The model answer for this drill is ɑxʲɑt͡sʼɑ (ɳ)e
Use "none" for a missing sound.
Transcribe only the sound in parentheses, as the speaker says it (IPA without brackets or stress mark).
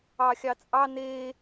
n